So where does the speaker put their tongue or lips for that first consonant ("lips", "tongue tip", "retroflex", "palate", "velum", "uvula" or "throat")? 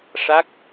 retroflex